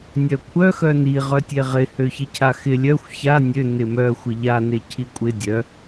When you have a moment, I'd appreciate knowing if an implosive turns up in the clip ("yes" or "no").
no